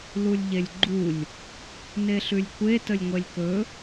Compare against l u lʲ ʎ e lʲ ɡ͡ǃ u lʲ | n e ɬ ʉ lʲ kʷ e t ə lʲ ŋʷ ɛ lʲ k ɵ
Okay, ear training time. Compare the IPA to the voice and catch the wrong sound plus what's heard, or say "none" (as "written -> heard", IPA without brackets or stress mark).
none